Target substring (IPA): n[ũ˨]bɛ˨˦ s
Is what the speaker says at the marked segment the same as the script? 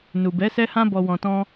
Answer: no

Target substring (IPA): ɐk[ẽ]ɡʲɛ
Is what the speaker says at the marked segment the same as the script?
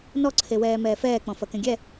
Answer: yes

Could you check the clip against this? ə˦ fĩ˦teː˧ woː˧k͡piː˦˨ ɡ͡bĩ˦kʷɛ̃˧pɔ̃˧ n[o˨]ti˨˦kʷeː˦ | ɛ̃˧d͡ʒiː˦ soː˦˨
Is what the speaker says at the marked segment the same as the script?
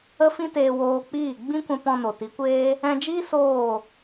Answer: yes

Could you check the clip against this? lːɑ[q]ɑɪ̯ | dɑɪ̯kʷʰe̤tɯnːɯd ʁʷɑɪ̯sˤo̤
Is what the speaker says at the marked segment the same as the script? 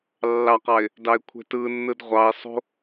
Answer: yes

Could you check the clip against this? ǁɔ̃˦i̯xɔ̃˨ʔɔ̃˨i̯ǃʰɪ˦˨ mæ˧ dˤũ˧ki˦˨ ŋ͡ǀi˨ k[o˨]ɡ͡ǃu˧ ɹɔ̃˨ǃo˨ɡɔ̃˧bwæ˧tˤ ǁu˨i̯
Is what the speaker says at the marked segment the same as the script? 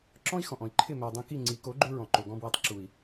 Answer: no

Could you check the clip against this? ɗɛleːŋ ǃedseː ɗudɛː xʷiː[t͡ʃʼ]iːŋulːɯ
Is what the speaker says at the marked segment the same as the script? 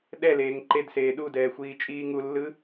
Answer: yes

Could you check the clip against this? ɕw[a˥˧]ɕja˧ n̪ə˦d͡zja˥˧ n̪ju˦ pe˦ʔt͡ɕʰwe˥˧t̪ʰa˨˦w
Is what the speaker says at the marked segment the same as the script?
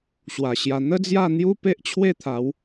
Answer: no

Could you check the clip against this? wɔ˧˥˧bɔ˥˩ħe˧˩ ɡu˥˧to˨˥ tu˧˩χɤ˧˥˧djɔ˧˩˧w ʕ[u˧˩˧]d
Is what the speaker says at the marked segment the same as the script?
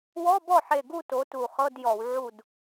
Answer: no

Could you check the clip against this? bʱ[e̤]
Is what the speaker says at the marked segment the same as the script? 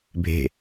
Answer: yes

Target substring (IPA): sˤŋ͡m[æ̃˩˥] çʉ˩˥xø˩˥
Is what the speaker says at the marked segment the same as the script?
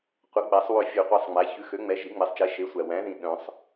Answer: no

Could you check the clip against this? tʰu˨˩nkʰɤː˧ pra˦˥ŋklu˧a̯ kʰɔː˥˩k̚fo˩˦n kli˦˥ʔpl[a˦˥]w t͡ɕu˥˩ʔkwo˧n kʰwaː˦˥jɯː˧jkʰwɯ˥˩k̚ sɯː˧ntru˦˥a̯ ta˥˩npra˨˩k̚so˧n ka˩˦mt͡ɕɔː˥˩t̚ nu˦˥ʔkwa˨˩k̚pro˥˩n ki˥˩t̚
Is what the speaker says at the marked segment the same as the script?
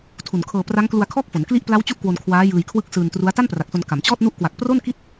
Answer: yes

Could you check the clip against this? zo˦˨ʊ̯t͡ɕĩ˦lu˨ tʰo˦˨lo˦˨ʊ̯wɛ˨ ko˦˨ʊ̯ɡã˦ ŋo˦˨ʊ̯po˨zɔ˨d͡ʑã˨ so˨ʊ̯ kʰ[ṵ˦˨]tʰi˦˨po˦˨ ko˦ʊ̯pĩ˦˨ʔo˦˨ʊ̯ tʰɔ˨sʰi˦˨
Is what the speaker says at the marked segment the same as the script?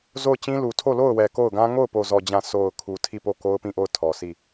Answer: no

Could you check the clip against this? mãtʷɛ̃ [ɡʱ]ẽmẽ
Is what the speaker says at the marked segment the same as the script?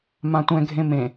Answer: yes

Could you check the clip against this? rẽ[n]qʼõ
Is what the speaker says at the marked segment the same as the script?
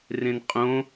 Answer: yes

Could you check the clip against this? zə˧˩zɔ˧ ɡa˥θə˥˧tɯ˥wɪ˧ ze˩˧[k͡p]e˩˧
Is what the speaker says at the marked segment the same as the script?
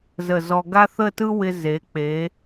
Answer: yes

